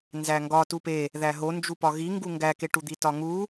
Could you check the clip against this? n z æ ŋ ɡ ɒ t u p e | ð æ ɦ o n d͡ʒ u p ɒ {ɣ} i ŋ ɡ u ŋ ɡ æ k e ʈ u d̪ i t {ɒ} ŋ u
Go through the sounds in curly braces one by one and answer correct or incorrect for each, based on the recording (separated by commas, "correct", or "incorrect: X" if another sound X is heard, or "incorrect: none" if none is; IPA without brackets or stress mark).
correct, correct